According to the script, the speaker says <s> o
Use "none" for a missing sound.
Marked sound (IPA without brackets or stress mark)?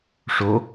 ʂ